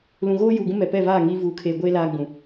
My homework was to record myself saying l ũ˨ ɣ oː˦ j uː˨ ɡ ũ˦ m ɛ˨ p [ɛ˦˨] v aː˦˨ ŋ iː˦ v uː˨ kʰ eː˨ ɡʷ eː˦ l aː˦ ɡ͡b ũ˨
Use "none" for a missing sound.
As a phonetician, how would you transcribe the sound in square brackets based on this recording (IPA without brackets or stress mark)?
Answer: ɛ˦˨